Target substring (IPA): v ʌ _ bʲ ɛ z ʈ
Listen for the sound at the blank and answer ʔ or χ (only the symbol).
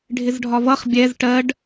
χ